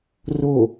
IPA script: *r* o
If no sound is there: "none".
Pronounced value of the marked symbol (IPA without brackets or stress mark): r